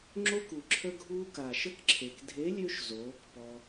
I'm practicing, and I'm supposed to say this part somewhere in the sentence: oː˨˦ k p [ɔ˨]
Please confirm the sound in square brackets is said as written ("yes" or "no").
no